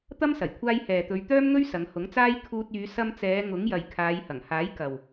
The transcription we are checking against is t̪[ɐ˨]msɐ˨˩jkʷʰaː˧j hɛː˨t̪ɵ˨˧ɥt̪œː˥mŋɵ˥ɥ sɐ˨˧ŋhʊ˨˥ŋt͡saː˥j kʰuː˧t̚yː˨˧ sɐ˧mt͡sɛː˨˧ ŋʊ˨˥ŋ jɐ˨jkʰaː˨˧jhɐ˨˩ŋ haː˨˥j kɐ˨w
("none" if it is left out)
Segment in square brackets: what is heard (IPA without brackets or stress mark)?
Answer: ɐ˥